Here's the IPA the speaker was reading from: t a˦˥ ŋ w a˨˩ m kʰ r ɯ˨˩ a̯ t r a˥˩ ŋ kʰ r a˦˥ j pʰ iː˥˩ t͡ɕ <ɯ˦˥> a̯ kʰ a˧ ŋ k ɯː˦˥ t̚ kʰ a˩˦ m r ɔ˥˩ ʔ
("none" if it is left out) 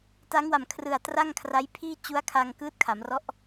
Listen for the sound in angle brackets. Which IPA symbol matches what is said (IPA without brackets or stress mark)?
u˦˥